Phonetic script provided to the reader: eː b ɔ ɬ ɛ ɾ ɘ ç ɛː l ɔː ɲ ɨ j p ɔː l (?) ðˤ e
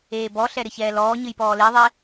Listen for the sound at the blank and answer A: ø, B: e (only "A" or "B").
B